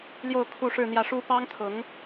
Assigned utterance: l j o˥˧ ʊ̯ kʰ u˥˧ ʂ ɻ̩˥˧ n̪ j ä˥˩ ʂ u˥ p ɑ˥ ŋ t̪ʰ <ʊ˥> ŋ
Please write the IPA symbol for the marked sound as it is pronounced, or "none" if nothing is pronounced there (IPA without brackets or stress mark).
ʊ˧˥